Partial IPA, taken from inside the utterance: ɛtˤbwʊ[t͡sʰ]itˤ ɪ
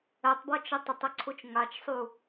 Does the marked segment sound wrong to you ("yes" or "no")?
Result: yes